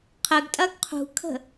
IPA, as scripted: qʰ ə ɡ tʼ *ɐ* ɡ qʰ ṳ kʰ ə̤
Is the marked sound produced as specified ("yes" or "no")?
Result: yes